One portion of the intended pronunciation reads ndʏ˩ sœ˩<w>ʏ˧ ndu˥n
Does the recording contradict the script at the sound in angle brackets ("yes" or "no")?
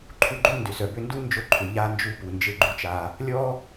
yes